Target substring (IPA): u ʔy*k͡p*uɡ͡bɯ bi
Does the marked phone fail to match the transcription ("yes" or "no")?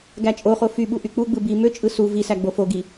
no